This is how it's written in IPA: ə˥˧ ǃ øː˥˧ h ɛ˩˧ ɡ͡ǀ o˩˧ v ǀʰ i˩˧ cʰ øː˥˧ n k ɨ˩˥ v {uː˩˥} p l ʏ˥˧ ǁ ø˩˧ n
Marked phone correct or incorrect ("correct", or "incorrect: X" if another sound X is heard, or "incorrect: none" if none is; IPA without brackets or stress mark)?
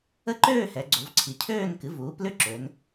correct